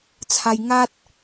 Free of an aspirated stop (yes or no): no